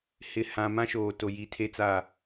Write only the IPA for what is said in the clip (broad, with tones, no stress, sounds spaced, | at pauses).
h ɪ˨ h ã˨ m ã˦ ʃ oː˨ t o˨ j i˨ tʰ e˦ t͡s a˦˨